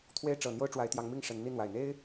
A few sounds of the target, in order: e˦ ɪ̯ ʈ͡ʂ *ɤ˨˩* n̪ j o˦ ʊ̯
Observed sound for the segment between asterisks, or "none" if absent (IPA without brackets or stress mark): ɤ˨˩